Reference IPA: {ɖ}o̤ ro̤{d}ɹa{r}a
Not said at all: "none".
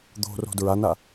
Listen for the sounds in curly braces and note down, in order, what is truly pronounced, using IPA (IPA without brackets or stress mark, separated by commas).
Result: d̪, d, n